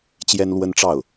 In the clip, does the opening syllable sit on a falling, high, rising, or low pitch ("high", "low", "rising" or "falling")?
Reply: high